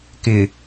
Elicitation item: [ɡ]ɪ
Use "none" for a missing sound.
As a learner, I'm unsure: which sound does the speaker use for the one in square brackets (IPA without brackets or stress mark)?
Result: k